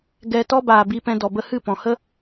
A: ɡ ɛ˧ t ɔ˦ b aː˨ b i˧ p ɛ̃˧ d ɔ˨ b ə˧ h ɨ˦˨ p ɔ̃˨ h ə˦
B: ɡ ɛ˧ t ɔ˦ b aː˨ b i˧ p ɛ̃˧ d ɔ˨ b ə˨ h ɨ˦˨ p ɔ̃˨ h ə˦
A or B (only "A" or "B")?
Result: A